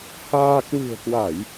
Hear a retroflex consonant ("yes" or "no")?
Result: no